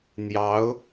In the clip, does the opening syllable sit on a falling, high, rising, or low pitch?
rising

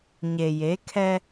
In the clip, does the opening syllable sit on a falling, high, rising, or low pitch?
low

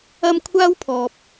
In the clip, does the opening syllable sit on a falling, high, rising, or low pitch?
high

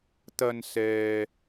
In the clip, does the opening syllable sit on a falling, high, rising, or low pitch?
low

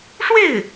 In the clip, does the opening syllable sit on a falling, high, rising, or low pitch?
falling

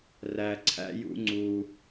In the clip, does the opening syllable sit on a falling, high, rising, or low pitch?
low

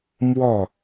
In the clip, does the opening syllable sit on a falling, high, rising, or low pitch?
falling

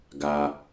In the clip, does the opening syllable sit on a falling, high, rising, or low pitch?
low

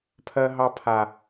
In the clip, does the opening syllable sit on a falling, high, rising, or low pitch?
high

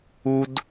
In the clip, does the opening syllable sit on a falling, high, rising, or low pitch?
high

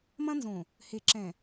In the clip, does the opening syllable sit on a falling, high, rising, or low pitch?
high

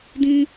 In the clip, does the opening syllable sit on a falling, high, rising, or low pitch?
high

